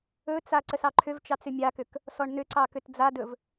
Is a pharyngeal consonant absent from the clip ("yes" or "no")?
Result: yes